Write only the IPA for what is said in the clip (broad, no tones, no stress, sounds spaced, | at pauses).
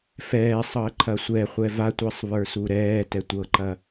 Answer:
f ɛː sˤ ɤ ə̯ ǃʰ ɐ sʷ ɛ χʷ ɛ v a tʷ ɜ sˤ β ə˞ s u ɾ ɛː t ɛ tʷ ɤ ǃ ɐ